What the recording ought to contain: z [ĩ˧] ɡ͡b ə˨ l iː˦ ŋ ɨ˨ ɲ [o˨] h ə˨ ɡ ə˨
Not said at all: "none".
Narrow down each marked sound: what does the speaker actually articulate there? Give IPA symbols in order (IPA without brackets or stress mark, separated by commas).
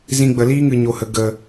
ĩ˧, o˨